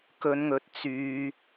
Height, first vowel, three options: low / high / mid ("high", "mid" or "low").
mid